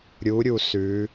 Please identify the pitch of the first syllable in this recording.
rising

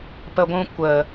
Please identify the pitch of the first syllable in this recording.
low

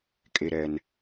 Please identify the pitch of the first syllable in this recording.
low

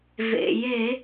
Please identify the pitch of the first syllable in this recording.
low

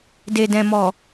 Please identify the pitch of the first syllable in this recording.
low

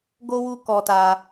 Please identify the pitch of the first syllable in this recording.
high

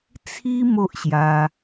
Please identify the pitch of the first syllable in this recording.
high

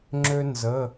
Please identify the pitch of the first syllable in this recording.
high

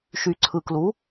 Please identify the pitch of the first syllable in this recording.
low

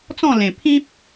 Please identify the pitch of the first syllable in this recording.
falling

